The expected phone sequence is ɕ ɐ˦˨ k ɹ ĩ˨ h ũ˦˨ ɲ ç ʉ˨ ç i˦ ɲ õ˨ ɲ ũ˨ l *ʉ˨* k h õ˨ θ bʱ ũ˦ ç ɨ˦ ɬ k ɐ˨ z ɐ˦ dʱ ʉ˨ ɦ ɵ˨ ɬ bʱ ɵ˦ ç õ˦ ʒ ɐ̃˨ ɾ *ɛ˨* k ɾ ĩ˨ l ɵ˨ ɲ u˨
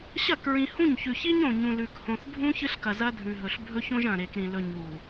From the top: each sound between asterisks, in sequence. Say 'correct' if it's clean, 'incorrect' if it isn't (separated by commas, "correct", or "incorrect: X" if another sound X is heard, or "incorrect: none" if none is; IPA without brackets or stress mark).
correct, incorrect: e˨